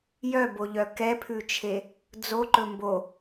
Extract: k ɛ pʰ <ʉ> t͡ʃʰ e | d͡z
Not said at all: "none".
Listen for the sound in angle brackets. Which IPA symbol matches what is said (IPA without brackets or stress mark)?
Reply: ʉ